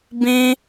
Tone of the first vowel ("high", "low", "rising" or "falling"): high